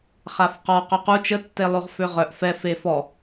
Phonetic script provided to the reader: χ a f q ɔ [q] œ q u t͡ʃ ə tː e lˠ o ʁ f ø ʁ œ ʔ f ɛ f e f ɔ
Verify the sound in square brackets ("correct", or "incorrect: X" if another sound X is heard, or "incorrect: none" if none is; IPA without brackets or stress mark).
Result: correct